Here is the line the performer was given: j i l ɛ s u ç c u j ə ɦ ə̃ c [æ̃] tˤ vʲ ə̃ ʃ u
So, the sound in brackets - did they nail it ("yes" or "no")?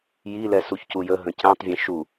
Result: yes